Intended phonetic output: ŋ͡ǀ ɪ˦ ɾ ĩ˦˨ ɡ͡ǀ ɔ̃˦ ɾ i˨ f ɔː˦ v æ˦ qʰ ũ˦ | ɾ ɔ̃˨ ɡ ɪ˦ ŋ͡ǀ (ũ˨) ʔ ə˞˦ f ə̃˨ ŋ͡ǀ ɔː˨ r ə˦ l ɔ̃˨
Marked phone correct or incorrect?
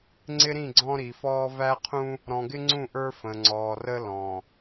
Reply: incorrect